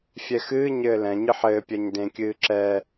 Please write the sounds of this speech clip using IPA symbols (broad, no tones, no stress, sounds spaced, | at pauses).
fʲ ɛ x ɨː ɲ ɘː l ɛ̃ ɲ ɨ ħ ɘː pʲ ɛ ɲ d ẽ kʲ ɨː ǁ ɛ